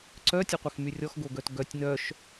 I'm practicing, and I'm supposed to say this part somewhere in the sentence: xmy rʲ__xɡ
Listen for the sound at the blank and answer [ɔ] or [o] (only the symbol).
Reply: ɔ